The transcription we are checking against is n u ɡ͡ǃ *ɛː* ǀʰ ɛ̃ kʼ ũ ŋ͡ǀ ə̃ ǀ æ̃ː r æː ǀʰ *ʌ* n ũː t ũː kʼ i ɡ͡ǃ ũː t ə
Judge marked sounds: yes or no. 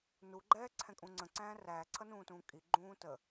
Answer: yes, yes

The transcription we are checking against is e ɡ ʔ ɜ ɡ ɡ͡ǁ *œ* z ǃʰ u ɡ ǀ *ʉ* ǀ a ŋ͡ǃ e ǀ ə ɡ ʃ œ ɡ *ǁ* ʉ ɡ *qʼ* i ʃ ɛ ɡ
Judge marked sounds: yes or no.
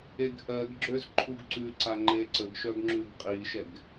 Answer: no, yes, no, yes

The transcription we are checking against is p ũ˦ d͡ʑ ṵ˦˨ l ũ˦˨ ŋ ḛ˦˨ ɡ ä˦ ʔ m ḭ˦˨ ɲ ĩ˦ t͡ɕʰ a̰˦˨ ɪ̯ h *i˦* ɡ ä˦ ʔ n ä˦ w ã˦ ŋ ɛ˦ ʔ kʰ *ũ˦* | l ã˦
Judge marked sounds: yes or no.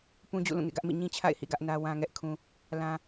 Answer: no, yes

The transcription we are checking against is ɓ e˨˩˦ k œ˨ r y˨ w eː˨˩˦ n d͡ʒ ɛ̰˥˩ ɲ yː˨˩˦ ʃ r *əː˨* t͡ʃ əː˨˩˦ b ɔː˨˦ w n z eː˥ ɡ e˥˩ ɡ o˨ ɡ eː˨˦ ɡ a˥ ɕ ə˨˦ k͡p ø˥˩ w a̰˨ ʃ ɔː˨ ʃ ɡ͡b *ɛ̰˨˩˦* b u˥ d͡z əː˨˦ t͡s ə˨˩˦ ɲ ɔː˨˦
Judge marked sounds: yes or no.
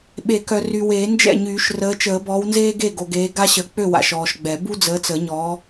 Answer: no, no

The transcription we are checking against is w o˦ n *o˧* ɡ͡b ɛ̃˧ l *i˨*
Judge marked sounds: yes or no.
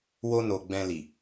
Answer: yes, yes

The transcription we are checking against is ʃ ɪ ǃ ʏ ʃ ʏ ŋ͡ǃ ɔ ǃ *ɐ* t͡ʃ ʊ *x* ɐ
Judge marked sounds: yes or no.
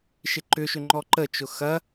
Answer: no, yes

